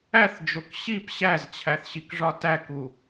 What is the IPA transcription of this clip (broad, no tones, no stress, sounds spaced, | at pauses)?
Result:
æ θ d͡ʒ o k ɕ i p ɕ æ z t͡ɕʰ æ θ ɕ i k ʐ ɒ t æ k u